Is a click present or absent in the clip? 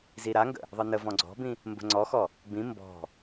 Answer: present